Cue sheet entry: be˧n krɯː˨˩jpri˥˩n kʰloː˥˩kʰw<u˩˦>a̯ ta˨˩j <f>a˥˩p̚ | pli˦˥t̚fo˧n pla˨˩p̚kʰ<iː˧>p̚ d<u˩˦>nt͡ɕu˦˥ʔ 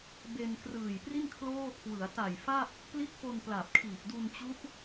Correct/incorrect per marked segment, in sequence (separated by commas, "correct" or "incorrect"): incorrect, correct, incorrect, incorrect